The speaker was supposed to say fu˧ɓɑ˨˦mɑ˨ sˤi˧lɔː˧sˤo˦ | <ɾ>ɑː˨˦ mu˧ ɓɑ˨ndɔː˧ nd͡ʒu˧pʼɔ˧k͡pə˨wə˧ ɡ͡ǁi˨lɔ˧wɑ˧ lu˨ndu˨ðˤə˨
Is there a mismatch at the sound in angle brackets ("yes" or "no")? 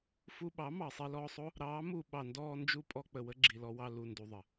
no